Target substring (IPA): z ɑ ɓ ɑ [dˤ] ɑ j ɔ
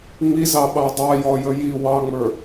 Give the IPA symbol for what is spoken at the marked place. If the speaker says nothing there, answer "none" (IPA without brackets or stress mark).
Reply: dˤ